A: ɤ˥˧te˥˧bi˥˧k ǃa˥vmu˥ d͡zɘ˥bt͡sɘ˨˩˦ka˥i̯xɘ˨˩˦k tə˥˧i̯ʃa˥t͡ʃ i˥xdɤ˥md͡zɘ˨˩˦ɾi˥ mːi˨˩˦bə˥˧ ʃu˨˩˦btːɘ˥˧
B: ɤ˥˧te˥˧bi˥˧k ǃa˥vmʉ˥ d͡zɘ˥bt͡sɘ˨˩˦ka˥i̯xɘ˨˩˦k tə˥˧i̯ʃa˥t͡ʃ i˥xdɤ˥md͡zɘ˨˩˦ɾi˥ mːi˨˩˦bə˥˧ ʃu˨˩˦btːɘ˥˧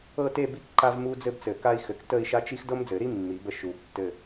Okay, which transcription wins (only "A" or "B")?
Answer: A